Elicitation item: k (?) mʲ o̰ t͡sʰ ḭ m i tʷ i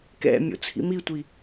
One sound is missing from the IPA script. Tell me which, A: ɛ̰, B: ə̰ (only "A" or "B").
A